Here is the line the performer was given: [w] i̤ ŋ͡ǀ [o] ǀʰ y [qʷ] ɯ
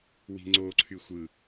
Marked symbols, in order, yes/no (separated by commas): yes, yes, no